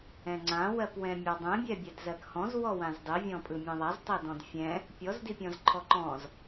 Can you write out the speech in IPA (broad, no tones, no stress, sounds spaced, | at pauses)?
ɛ̃ ŋ͡ǀ ã w ɜ p w ɛ̃ mʲ a dˤ ɛ̃ bʲ ɛ bʲ ɛ d z ɜ k h ɔ̃ z w ɔ w ã z dˤ i vʲ ɔ̃ pʼ ɯ mʲ ɛ̃ ðˤ a z tˤ ɛ d ɔ̃ d fʲ ɛ̃ | pʲ ɔ z d i pʲ ɔ̃ z ǃʰ ɔ ǃ ɔ̃ z